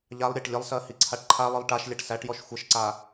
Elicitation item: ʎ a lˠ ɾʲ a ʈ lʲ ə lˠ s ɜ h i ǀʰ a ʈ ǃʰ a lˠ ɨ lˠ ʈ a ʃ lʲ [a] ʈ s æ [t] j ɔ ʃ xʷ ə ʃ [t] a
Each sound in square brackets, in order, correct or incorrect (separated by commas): correct, incorrect, incorrect